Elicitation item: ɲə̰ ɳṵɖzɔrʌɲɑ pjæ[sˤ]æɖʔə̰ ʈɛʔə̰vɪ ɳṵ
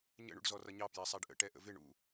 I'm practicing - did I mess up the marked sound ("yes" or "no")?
no